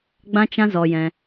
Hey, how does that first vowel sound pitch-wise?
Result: high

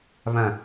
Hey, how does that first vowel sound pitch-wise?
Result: low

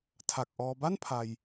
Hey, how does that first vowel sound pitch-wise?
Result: low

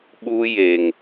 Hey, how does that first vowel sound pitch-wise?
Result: high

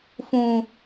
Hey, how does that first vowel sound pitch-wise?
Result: low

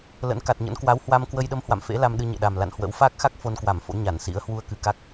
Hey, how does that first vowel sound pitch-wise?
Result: rising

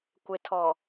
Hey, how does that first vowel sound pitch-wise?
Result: low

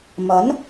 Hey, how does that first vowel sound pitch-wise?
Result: rising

